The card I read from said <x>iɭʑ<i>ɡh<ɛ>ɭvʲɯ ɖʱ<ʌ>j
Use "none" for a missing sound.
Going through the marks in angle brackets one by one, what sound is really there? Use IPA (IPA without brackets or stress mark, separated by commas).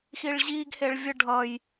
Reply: x, i, e, ʌ